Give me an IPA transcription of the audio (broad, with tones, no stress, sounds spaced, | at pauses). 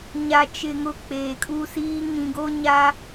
ɲ a˨ t͡ʃ ɪ˨ ŋ ʊ˨ k͡p eː˨ kʼ u˦ s iː˦ ŋ ĩ˨ ɡ o˦ ɲ a˦